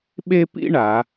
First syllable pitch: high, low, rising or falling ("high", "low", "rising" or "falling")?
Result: high